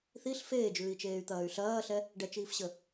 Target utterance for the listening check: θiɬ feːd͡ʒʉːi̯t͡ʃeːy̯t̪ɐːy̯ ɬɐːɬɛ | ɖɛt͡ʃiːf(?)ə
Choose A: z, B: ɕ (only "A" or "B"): B